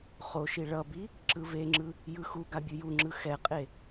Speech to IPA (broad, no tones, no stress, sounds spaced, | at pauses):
χ o ʃ i ɭ ʌ b i | ǁ ɯ v e ŋ͡ǁ ɯ | j ɯ x u ɡ a bʲ ɯ j u ŋ͡ǁ ɯ x ɛ qʼ e